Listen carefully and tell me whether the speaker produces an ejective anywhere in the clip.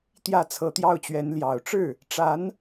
no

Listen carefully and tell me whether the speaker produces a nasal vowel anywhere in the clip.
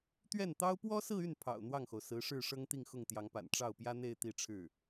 no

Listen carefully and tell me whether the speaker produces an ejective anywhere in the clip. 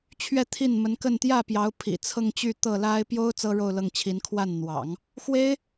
no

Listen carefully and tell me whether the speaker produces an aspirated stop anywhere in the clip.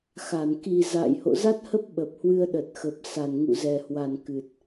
no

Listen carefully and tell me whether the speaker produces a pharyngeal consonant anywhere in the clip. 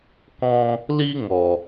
no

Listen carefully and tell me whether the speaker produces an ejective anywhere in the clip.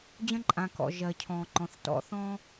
yes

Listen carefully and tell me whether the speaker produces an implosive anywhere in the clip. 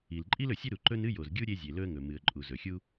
no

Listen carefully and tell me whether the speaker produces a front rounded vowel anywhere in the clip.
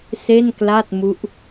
no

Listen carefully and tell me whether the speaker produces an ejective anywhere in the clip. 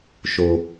no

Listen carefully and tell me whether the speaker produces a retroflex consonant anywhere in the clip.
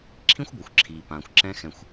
no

